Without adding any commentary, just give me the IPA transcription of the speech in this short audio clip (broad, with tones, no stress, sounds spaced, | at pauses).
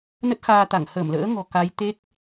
n ə˦˥ t̚ x aː˧ t̪ a˧˩ ŋ h ə˧˩ m l ə̰ː˧˥ ŋ ɔ̤˨˩ k a˨˦ j t̪ e˦˥ k̚